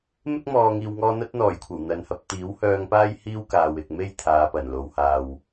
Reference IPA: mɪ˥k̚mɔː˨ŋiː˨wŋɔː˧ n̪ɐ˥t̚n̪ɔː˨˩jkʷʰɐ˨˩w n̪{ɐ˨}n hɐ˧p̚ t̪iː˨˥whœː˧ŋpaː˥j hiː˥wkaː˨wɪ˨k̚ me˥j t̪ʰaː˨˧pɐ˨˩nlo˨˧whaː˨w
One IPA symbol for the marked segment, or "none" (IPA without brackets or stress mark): ɐ˨